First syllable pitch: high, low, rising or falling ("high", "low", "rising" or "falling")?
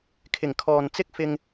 low